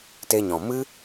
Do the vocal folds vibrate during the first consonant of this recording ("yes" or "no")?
no